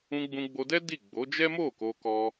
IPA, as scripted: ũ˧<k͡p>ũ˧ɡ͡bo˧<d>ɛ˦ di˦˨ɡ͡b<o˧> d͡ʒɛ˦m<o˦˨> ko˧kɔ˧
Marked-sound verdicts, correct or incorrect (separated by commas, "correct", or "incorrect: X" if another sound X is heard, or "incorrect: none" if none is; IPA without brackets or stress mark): incorrect: ɡ͡b, correct, incorrect: o˨˦, correct